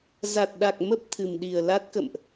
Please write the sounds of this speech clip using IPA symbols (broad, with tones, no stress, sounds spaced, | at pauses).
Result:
z a˨˩ t̚ ɗ a˨˩ k̚ m ə˦˥ p̚ t̪ʰ ɨ˨˩ m ɗ i˨˩ ə̯ l a˦˥ t̚ k ə̰˧˨ m ʔ